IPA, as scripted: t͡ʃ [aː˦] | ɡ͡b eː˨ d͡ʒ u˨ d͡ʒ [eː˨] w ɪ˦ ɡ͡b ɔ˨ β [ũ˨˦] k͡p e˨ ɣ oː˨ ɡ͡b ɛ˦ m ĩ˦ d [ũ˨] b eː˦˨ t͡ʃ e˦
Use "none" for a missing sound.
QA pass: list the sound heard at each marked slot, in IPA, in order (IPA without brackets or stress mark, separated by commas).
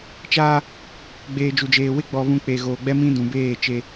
aː˦, eː˨, ũ˨, ũ˨